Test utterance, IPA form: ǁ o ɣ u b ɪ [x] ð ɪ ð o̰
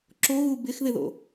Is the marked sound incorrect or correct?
correct